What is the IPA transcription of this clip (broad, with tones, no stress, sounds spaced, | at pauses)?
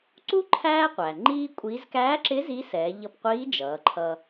ǀ u˥ ǃʰ æː˥ qʷ æ˩ ŋ͡ǃ iː˥ kʷʼ iː˧˥ z k æː˧˥ ǁ ɪ˧˥ z i˧˥ s ɛː˩˧ ʎ ʌ˧ p qʷ iː˧˥ d͡ʒ ʌː˩˧ ǃʰ ʌ˧